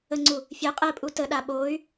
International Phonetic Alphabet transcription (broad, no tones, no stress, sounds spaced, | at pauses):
ə ŋ͡ǀ u | fʲ ɛ qʼ ɛ pʼ u t ə ɗ a ɓ o y̯